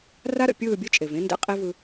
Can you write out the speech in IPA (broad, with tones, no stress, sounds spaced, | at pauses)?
r a˦ ɾ ə̰˨ pʲ ɯː˦˨ bʲ ɘ˦ t͡ʃʼ e˨ v ẽ˦ n d ḛ˦ qʼ i˦ v ɯ˦